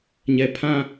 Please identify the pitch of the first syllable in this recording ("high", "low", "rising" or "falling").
low